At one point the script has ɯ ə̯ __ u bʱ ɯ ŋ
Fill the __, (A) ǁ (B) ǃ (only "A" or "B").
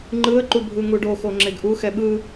B